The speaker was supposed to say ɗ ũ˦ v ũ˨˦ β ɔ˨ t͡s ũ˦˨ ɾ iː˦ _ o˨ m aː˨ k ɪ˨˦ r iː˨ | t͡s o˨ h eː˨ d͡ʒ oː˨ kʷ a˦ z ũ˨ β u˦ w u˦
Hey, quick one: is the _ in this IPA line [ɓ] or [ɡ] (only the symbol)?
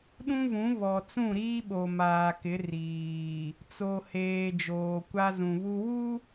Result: ɓ